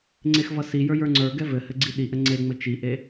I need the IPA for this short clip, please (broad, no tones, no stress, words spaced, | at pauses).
ŋ͡ǀexvʌsijə˞ jə˞ŋ͡ǀə˞ɡɛ vɘhɘ ɡ͡ǀiɗiʔɘ ŋ͡ǀeŋ͡mɘ t͡ʃiʔe